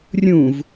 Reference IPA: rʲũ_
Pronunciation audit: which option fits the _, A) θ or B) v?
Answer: B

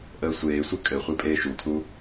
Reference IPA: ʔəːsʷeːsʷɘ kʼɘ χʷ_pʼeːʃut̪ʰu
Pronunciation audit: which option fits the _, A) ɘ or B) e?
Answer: B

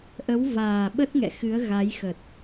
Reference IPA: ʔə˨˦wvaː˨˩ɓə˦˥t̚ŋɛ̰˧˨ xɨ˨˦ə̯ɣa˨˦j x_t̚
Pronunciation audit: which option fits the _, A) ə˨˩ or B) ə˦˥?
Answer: A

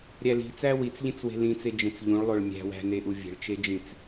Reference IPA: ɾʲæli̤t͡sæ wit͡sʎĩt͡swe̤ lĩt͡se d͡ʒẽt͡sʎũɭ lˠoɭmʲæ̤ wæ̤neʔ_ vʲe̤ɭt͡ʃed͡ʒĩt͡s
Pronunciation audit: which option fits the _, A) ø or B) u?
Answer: B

